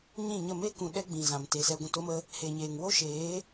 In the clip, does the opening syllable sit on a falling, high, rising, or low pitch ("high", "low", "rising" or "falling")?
falling